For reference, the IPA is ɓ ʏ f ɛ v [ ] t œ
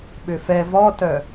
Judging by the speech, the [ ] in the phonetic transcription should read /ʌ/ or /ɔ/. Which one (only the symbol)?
ɔ